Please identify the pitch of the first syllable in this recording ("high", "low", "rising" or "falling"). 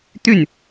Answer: falling